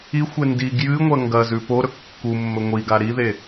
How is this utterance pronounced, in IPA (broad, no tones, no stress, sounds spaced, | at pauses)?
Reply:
i xʷ e n d i ɡ j ɨ ŋʷ ɐ ŋ ɡ ɐ z ʉ p o ɾ ɵ kː u mː ɵ ŋʷ i ɡ a ɾ i ð e